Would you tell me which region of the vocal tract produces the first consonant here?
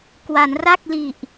velum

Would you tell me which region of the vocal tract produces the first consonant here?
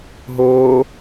throat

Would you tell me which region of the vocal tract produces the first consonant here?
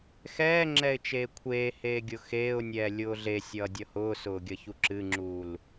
velum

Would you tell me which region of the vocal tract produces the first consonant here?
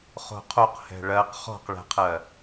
uvula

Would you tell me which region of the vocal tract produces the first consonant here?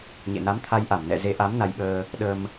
palate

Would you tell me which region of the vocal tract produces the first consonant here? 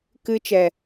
velum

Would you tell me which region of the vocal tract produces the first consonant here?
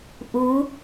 throat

